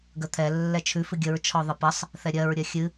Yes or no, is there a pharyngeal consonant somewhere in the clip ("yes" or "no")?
no